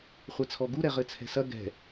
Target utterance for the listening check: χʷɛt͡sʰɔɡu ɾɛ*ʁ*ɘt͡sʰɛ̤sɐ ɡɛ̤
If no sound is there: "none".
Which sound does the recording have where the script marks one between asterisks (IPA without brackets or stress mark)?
ʁ